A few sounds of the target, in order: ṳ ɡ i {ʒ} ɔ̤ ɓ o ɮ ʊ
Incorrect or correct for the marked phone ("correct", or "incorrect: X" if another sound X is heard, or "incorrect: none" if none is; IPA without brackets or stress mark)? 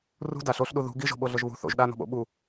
correct